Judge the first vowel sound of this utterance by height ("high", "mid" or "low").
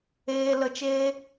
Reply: mid